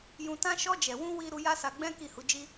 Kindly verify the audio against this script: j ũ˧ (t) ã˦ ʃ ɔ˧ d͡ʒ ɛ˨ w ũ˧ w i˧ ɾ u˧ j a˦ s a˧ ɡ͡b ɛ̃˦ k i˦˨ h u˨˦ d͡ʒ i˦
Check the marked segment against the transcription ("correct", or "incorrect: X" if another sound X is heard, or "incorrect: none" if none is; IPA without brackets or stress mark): correct